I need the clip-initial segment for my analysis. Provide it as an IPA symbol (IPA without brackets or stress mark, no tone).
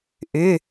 ʔ